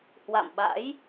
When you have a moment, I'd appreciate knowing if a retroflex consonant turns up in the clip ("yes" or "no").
no